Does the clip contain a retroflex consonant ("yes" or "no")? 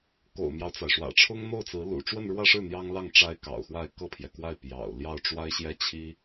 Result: yes